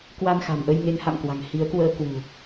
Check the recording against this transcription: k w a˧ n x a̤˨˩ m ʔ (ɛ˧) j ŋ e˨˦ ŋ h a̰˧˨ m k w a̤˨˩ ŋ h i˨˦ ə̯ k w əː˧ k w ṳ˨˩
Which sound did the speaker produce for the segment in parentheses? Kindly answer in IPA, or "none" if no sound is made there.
ə˧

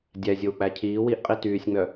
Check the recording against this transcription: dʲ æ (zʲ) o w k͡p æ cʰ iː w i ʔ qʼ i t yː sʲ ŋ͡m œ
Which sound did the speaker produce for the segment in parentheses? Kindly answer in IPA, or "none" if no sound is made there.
zʲ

